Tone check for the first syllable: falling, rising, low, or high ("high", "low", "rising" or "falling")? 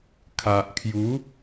low